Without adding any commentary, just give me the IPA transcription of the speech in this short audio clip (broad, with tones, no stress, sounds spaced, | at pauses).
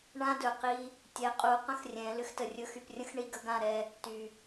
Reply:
ɳ ã˦ d ɵ˨ q i˦ | tʲ ɛ˨ qʼ u˨˦ q ə̃˦ x rʲ ɛ̃˨˦ l ʏ˦ x t ə˨ rʲ ɵ˦ x y˨ p rʲ ə̃˦ x ɳ i˦ ɡ ə˦ ɡ ã˦˨ ɾ ɛ˦ | t y˨